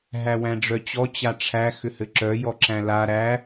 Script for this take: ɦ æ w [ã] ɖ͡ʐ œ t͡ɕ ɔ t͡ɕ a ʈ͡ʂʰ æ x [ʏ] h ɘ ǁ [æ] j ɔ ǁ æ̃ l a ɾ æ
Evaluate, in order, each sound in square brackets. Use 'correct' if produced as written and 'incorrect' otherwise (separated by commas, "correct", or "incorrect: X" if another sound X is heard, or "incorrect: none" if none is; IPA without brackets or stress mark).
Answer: incorrect: æ̃, correct, incorrect: œ